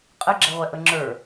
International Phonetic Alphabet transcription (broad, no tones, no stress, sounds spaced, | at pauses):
qʼ ə ɡ͡ǁ ɛ ʁʷ ɛ ʔ ə ŋ͡ǁ ə˞